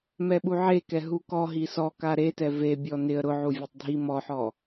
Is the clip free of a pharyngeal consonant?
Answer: no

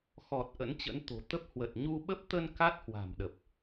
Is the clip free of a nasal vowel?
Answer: yes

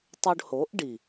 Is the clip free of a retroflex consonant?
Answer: no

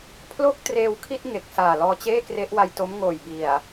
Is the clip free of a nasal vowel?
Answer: yes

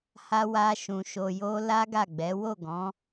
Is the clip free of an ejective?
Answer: yes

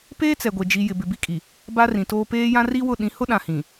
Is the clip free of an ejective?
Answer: no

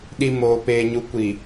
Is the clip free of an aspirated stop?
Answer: yes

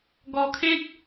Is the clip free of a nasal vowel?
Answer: no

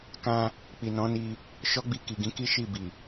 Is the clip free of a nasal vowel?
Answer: no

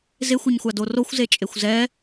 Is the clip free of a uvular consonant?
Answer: yes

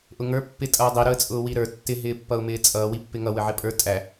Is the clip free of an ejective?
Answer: no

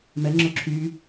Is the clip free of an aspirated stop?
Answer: no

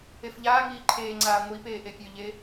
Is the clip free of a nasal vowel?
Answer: yes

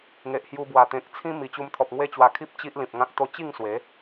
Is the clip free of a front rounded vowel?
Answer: yes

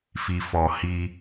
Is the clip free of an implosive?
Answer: yes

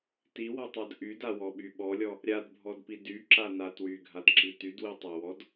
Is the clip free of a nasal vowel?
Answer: yes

